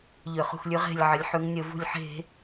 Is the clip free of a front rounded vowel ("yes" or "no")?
no